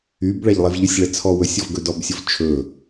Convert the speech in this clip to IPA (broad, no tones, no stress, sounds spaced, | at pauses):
y b ɭ æ ʎ lˠ e v ʎ ɵ sʲ ɭ ɛ t͡sʰ ɔ w ɵ sʲ ɔ v ɡ ɵ d ɔ b sʲ o v t͡ʃʰ ɵ